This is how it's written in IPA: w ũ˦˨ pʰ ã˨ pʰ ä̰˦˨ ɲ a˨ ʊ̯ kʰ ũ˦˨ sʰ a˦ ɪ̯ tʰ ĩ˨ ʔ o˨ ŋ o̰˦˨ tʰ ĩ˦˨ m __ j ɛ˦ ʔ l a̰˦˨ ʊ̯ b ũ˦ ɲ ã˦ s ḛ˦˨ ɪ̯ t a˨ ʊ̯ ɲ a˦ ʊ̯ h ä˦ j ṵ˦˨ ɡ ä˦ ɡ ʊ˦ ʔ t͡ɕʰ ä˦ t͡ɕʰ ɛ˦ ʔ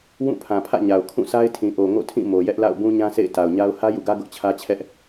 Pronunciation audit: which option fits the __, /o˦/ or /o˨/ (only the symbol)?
o˨